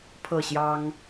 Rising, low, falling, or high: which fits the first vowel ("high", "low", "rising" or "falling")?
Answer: falling